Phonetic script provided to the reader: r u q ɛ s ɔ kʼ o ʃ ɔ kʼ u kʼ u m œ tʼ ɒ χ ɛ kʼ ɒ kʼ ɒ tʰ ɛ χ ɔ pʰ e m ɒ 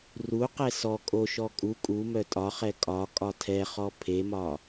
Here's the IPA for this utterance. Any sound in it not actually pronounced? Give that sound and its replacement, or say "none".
none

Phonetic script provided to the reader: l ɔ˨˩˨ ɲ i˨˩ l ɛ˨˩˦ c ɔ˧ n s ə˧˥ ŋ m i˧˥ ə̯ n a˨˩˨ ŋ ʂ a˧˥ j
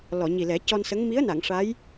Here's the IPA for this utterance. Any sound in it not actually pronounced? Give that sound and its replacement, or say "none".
none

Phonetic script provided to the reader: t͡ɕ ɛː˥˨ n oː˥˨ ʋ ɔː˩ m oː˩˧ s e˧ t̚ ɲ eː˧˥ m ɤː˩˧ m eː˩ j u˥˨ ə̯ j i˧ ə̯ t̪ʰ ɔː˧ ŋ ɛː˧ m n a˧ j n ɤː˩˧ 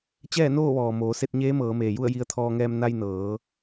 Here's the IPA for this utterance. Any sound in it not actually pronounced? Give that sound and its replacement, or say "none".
none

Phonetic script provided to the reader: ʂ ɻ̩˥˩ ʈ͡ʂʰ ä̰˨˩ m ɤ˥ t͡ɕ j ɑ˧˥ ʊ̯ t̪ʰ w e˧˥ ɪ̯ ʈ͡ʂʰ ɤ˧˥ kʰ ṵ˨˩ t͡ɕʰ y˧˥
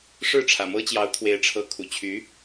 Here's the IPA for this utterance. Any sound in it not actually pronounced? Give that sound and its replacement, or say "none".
none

